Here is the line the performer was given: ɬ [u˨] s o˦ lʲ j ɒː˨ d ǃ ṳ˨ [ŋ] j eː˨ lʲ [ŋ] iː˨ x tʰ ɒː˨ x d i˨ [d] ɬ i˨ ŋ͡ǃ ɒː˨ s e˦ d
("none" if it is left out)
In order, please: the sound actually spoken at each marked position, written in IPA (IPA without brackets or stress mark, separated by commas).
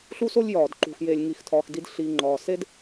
u˦, x, ŋ, d